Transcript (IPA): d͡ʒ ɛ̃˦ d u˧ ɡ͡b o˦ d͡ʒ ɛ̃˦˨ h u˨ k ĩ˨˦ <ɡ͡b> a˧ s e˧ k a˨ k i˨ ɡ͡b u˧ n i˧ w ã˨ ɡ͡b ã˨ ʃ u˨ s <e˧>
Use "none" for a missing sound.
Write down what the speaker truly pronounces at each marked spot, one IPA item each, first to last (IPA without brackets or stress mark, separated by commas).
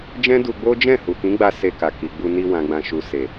ɡ͡b, e˨